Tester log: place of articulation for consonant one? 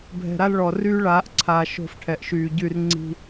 labial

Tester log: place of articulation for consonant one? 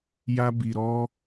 palatal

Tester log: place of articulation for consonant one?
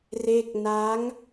alveolar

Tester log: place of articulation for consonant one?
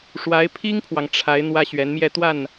retroflex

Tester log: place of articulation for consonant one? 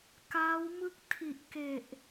velar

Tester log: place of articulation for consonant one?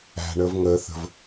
retroflex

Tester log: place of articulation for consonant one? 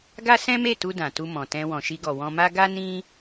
velar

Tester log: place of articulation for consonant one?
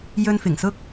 palatal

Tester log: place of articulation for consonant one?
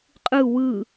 uvular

